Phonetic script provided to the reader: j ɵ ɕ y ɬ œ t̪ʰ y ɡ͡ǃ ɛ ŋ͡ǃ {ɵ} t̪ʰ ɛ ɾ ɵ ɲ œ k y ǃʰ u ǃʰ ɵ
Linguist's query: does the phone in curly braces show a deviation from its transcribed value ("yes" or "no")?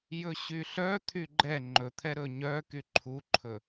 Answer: no